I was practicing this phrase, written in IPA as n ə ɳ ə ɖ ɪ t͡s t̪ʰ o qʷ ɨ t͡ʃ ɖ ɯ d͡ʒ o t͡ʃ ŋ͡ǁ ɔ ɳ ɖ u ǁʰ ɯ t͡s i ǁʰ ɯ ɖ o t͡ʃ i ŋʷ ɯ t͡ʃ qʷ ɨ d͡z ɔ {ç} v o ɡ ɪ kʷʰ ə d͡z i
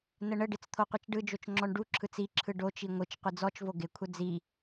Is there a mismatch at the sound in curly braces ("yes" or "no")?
yes